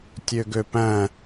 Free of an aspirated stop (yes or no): yes